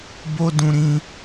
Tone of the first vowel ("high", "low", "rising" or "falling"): high